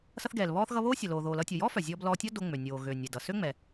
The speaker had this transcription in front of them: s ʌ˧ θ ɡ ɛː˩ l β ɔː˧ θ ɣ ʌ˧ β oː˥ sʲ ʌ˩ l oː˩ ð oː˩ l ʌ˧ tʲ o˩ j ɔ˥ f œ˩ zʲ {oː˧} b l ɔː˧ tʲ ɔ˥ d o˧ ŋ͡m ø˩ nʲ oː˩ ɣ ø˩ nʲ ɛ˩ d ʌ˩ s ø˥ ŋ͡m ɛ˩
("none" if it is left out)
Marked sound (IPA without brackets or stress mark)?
ɔː˧